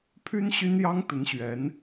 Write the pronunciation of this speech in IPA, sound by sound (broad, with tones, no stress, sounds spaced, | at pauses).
pʰ y˥ n ɕ y˥ n j ɑ˥ ŋ t̪ ə˧˥ n ɕ ɥ ɛ˧˥ n